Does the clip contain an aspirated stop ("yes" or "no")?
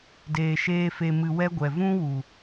no